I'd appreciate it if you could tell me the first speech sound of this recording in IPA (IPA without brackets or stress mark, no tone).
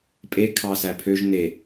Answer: pʼ